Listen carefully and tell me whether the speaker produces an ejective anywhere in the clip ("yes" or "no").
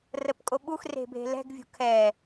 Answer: yes